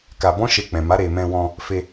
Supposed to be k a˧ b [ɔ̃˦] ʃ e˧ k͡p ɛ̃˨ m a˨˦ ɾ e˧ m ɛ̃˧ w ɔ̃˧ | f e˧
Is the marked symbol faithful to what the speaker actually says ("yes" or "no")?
yes